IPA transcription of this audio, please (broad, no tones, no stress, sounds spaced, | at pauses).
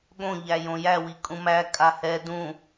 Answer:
ɠ õ ʎ æ j õ j æ w i kʼ ũ m æ kʼ a h ɛ d ũ